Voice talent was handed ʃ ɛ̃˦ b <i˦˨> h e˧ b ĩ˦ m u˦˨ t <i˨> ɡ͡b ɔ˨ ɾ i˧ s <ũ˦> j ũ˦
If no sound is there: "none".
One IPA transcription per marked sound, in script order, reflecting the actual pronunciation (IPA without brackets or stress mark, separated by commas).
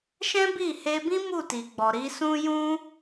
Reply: i˦˨, i˨, ũ˦